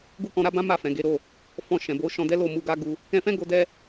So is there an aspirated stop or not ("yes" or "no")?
no